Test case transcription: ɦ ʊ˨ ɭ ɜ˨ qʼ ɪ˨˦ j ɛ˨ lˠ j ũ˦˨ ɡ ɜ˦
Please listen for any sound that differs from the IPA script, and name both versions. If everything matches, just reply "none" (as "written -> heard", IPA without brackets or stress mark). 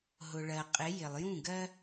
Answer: ɛ˨ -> ɪ˨